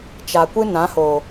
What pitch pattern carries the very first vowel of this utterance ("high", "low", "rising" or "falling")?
low